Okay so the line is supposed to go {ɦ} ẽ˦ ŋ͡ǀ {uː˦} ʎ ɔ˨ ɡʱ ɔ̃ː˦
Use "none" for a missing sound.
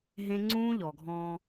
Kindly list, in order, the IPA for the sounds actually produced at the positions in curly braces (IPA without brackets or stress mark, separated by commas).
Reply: ɦ, ũː˦